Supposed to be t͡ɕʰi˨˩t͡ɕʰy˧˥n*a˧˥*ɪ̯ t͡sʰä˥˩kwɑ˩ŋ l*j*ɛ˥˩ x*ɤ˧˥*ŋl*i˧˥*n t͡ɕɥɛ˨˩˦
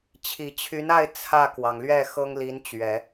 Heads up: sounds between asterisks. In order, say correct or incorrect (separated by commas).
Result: incorrect, incorrect, incorrect, correct